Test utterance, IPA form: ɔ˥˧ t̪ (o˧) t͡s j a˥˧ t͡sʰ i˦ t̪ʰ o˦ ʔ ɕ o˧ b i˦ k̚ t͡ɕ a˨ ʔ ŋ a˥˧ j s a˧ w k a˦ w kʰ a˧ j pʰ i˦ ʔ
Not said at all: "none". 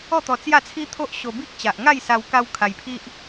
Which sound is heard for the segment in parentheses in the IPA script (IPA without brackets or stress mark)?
ɔ˧